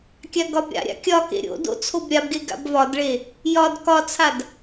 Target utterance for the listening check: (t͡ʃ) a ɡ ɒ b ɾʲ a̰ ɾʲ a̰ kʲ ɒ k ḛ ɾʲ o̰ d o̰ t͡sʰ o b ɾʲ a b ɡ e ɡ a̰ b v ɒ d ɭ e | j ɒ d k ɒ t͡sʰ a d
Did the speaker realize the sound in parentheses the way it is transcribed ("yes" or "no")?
no